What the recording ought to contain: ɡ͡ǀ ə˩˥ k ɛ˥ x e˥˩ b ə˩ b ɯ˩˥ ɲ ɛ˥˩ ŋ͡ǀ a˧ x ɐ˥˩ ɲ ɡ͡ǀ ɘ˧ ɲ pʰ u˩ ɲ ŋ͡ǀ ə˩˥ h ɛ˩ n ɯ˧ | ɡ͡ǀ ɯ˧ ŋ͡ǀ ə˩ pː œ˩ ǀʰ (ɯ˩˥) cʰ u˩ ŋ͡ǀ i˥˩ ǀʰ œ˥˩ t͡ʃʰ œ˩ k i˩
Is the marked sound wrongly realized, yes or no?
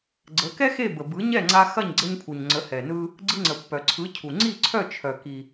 no